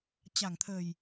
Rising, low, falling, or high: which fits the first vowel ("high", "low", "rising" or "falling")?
low